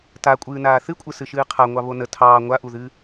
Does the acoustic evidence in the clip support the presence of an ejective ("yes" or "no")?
yes